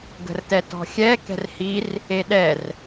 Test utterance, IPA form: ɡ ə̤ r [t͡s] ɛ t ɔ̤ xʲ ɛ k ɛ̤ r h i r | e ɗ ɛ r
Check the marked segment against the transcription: incorrect: t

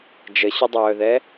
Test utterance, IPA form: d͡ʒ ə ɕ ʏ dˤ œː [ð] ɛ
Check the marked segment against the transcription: correct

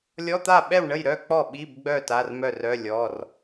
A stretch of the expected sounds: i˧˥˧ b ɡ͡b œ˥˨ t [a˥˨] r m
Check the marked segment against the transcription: incorrect: a˧˥˧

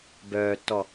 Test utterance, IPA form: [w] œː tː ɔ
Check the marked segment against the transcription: incorrect: b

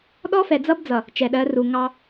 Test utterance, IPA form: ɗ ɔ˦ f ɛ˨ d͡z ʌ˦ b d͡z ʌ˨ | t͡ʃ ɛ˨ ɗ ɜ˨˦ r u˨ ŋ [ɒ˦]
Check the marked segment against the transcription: incorrect: ɑ˦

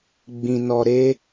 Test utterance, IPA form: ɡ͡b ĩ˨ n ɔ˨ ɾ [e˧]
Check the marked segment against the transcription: correct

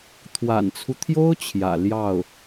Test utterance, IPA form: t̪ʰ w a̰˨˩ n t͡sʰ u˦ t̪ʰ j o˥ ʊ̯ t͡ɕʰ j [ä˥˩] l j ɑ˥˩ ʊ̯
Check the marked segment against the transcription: incorrect: ä̰˨˩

